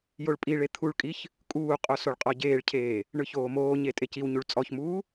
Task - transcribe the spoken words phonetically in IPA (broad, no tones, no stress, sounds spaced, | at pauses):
j o ɭ pʼ i ɭ e t̪ʰ u ɭ kʼ i ç | kʼ uː qʼ o s o ɭ qʼ ɔ ɟ eː ɭ cʰ eː | ɳ ɯ ç oː m oː ɲ e tʼ e c i w ɲ u ɭ t͡sʼ ɔ ç m uː